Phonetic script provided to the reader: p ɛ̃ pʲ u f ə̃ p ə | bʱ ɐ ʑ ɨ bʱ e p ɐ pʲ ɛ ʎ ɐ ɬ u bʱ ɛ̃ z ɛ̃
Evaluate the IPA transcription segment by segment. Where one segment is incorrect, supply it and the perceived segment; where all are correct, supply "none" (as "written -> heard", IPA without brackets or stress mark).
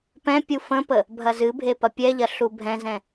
ʑ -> z